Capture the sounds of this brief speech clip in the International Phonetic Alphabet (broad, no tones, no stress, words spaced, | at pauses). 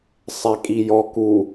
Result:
sˤɛkʼijɔ ku